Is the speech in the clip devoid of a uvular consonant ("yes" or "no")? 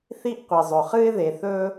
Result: no